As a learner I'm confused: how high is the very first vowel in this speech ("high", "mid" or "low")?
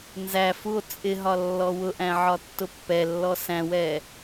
low